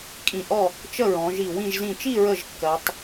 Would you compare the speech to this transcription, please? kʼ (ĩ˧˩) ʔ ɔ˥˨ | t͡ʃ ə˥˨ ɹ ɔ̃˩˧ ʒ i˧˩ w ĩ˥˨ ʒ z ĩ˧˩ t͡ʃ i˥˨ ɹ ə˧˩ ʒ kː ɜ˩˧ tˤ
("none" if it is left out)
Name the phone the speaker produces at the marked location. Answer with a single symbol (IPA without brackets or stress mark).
ĩ˧˩